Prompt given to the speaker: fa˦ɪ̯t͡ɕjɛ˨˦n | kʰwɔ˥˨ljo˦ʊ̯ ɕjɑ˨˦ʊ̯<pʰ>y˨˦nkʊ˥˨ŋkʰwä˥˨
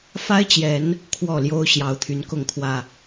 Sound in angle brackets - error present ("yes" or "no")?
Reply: yes